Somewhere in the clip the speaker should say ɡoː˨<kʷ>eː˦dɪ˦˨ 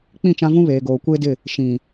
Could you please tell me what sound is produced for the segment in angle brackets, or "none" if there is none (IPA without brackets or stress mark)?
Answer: kʷ